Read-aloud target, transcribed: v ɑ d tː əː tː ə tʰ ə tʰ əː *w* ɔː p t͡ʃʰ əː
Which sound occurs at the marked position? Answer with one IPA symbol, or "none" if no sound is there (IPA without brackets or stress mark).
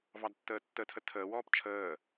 w